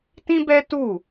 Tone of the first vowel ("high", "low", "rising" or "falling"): high